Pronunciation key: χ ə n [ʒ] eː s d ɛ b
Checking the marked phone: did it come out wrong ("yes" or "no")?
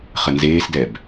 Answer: yes